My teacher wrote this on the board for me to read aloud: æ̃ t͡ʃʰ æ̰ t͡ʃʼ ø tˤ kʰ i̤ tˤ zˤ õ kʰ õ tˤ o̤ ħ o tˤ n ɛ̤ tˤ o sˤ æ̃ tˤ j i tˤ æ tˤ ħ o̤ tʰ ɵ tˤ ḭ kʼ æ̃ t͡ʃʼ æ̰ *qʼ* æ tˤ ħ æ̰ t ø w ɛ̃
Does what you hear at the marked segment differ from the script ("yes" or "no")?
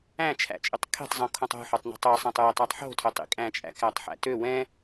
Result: yes